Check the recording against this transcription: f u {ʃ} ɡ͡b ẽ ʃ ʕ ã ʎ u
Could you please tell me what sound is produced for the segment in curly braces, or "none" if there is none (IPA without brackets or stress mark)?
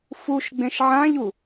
ʃ